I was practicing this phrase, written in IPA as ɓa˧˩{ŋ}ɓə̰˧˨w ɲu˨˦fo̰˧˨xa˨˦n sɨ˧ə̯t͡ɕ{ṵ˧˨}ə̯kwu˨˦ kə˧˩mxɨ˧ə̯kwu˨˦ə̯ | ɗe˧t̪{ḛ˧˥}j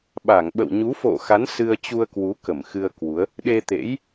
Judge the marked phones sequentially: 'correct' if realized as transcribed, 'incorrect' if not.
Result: correct, incorrect, correct

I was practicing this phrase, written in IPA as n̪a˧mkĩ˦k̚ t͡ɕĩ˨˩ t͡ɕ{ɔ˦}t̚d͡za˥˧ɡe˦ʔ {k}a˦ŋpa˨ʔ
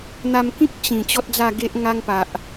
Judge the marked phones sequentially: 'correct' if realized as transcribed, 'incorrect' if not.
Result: correct, incorrect

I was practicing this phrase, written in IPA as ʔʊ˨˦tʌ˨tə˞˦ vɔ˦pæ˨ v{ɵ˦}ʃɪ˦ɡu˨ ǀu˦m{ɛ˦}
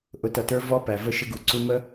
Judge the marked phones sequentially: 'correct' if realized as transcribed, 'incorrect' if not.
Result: incorrect, incorrect

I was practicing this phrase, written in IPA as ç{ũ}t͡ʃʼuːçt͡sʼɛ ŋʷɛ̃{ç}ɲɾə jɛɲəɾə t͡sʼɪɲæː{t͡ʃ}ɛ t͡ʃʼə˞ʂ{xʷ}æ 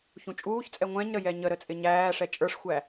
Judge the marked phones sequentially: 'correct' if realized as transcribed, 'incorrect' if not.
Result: correct, incorrect, incorrect, correct

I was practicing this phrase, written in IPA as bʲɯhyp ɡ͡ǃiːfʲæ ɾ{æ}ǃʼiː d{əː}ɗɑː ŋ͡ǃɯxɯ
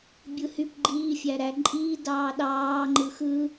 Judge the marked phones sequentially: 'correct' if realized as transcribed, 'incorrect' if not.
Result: correct, incorrect

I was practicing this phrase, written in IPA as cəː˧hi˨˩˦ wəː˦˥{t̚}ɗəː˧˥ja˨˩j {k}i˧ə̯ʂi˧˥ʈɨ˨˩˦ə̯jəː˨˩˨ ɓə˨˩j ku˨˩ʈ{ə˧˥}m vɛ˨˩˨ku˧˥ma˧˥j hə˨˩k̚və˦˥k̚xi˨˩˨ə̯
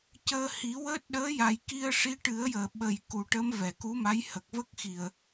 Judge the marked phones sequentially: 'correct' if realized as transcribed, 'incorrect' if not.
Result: correct, correct, correct

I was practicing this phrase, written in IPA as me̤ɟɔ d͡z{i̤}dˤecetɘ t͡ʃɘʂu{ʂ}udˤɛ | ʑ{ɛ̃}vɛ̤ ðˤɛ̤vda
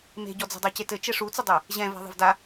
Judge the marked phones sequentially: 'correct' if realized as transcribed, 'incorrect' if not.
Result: incorrect, incorrect, correct

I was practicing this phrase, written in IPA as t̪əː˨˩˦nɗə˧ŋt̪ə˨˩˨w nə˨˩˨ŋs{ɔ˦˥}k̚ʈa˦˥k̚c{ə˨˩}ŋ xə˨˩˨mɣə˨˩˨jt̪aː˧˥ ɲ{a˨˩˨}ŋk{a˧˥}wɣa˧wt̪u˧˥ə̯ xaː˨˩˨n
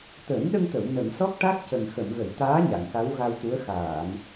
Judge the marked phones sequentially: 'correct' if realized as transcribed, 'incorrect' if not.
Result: correct, correct, correct, correct

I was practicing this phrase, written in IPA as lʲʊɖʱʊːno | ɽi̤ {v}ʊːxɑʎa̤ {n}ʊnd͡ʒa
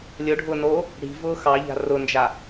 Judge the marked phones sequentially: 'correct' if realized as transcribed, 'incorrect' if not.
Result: correct, incorrect

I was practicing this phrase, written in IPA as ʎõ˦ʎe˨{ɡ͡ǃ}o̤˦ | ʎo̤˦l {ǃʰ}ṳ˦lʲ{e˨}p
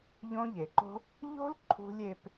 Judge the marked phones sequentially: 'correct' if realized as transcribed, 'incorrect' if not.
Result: incorrect, correct, incorrect

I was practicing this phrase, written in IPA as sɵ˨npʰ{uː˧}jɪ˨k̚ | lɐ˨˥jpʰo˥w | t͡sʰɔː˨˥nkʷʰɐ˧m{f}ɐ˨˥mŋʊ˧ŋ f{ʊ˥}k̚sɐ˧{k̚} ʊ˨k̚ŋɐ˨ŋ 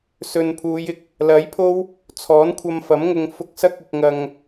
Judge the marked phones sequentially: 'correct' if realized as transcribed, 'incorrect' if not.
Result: incorrect, correct, incorrect, correct

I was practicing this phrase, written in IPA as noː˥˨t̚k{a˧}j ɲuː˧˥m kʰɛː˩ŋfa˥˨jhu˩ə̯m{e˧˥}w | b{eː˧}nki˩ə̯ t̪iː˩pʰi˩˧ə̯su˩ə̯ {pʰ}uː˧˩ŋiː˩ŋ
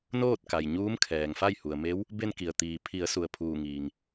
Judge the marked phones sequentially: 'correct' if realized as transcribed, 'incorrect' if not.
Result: incorrect, correct, incorrect, correct

